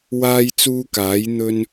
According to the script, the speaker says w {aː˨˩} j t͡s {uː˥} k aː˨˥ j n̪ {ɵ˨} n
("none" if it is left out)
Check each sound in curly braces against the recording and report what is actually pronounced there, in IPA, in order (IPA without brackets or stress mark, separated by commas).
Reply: aː˥, uː˥, ɵ˥